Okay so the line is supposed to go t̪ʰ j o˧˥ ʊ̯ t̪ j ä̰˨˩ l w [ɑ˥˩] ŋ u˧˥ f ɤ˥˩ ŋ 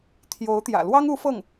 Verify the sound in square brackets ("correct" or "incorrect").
incorrect